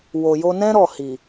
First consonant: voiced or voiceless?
voiced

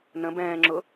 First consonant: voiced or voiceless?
voiced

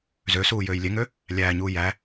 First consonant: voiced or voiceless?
voiced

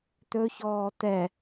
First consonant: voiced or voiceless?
voiceless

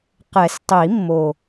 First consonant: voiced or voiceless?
voiceless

